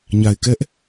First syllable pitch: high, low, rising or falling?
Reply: low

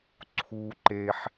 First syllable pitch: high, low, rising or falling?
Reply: high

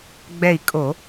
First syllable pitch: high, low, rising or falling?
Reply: falling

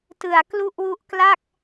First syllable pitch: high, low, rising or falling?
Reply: low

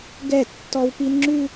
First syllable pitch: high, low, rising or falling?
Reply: falling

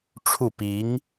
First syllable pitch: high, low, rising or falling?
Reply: falling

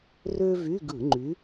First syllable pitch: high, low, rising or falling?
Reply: high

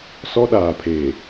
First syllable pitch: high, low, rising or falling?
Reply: high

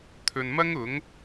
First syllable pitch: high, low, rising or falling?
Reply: low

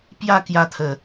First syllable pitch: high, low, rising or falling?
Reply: falling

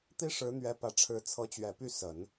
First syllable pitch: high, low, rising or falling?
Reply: high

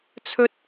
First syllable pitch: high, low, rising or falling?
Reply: high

